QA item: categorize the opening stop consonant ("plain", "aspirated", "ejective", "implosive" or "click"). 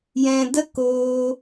plain